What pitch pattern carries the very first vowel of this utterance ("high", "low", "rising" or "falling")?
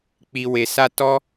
low